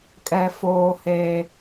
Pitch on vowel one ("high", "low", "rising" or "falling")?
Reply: high